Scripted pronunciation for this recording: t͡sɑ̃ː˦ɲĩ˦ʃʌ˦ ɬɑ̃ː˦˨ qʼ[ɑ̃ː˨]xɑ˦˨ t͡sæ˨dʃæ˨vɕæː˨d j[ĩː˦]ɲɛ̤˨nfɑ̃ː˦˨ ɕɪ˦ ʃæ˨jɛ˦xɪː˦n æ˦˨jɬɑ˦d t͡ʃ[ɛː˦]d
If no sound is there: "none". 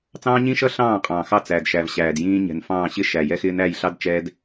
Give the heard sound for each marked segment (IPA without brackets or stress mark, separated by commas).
ɑ̃ː˨, ĩː˦, ɛː˦